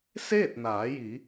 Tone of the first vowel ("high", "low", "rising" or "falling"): falling